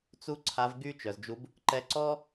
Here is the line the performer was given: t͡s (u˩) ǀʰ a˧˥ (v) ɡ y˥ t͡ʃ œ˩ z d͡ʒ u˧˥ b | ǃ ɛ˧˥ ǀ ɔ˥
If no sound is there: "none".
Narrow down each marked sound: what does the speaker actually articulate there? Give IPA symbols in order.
u˥, v

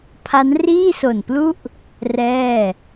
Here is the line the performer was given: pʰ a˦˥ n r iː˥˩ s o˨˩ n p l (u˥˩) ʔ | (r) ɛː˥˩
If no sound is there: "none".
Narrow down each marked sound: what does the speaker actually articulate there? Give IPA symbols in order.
u˥˩, r

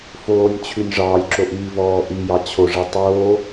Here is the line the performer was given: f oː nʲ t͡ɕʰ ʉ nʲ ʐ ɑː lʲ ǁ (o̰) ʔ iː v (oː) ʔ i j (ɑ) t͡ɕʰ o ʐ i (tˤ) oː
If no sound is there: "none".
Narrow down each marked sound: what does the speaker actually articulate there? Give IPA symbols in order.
o, ɔː, ɑ, tˤ

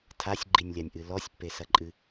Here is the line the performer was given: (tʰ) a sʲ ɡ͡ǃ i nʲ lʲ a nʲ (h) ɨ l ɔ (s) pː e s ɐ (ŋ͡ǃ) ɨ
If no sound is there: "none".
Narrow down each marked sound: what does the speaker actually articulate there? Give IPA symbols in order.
tʰ, ʔ, sʲ, ǃʼ

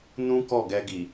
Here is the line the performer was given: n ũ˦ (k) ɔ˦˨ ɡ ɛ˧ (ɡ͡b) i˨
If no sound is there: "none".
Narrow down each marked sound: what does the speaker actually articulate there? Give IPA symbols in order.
k, ɡ

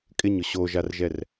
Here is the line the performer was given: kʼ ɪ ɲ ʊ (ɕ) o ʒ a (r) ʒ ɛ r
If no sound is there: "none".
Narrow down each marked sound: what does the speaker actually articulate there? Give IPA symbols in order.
ɕ, r

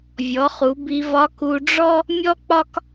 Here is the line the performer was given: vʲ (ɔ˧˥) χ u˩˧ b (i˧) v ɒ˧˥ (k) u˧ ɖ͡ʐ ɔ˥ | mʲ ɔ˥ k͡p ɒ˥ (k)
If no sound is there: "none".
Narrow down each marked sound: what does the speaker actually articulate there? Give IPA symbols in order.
ɔ˩˧, i˧, k, k

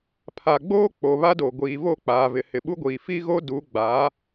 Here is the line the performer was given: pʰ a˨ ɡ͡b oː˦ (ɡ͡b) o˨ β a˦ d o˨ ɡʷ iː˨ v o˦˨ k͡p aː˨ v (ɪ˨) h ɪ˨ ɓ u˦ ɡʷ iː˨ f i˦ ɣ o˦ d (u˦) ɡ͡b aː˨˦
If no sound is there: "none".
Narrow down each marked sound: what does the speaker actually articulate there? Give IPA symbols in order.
k͡p, ɪ˨, u˨˦

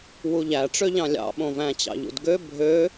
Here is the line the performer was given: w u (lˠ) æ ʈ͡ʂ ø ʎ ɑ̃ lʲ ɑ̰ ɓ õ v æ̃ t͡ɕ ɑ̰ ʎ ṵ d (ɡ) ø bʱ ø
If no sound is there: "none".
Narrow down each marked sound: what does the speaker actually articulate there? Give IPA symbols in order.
ʎ, ɡ

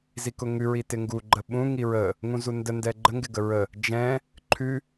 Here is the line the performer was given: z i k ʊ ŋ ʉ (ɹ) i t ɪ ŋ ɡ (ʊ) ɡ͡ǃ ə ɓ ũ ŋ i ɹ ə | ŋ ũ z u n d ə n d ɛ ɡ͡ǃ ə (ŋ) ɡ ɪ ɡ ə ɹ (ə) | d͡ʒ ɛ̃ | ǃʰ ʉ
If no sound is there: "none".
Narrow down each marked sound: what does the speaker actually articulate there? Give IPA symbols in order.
ɹ, u, ŋ, ə

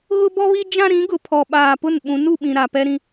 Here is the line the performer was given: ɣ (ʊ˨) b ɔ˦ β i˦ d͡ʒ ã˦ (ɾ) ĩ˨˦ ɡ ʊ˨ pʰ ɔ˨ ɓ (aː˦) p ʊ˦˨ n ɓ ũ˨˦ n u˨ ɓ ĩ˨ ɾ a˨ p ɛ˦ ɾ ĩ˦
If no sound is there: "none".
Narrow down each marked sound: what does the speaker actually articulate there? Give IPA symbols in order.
ʊ˦, ɾ, aː˨

